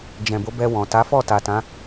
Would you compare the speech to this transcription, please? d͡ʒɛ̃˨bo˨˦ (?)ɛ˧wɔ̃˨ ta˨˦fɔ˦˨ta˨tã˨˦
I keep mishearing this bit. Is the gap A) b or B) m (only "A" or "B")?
A